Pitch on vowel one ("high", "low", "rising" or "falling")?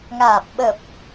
low